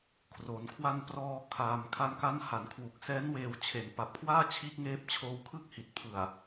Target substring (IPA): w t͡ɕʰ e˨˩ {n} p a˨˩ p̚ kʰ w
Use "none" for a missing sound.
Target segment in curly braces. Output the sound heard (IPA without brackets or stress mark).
n